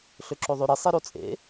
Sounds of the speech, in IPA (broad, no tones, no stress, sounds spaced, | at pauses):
ɬ ø ǁ o ðˤ ø ɾ i sˤ i ɾ o t͡sʼ ḛ